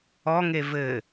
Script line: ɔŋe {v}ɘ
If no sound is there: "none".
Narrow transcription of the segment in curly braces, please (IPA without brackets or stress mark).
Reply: v